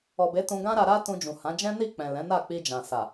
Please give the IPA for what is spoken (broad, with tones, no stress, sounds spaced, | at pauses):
ɔ˨ b e˨˦ t ũ˧ ɡ ã˦ ɾ a˧ ɾ a˦ t ũ˧ d͡ʒ ũ˨ h ã˨˦ d͡ʒ ɛ̃˦ n i˦˨ k͡p ɛ̃˨ l ɛ̃˨˦ n a˦˨ k͡p i˧ d͡ʒ ã˨ s a˨